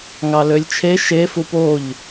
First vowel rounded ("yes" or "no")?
no